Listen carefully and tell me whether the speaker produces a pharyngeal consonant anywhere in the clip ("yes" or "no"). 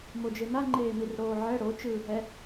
yes